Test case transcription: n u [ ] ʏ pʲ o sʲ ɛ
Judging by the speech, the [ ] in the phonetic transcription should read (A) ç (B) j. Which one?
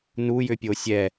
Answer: B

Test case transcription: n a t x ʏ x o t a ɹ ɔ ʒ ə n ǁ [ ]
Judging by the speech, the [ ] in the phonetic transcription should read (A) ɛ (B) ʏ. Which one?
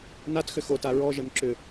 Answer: B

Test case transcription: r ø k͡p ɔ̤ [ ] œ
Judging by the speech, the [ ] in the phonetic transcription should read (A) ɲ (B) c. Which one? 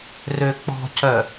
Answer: B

